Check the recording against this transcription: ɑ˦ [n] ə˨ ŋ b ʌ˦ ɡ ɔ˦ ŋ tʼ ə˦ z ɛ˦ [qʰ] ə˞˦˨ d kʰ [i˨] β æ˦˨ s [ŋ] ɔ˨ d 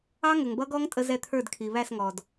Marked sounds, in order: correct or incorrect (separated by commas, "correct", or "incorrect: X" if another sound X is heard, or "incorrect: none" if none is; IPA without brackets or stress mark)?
incorrect: ŋ, incorrect: t̪ʰ, correct, correct